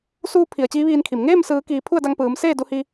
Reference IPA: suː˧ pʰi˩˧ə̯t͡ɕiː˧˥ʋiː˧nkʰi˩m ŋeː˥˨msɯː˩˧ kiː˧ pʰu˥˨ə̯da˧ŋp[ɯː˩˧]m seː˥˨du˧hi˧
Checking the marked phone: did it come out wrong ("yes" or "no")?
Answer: no